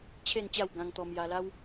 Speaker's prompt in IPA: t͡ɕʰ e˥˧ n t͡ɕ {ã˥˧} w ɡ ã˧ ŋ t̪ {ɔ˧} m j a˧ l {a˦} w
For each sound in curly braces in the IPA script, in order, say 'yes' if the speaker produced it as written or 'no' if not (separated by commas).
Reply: no, yes, yes